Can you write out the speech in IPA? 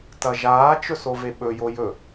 t ɐ ʒ aː t͡ʃ ɵ s o v e ɓ ɵ j o j ɵ

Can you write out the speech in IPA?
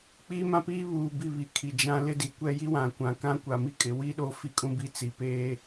k͡p iː˦ m ã˦ p iː˦ β uː˨ b i˦˨ β i˨ kʰ i˨ d͡ʒ ã˦ l ɪ˦ d i˨ kʷ ɛ˦ j i˦ w ã˨ kʷ ã˨ k ã˦ kʷ a˨ m i˦ kʼ ɪ˨ w i˦ ɗ o˦ f i˦ kʼ ũ˦ b i˦ t͡s i˨ p eː˦

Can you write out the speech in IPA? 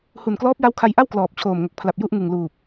h u˨˩ n k l ɔː˦˥ p̚ j a˦˥ w kʰ a˧ j ʔ a˥˩ w k l ɔː˨˩ p̚ t͡ɕʰ oː˨˩ m ŋ o˨˩ k̚ pʰ l a˨˩ p̚ j u˥˩ ʔ ŋ ɯ˨˩ ŋ l uː˨˩ p̚

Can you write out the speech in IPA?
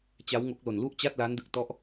t͡ɕ a˦˥ w ŋ o˦˥ k̚ l o˨˩ n l u˥˩ ʔ t͡ɕ a˥˩ t̚ l aː˦˥ n d ɯ˨˩ k̚ t ɔ˦˥ ʔ

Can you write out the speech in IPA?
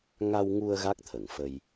ŋ a˧ w ŋ u˧ ə̯ ɣ a˦˥ k̚ t̪ʰ ə˨˩˨ ŋ f ə˧ j

